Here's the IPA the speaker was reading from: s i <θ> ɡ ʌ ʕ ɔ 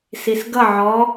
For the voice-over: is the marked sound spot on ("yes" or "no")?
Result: no